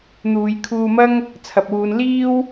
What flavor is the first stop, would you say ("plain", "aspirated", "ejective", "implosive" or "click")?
aspirated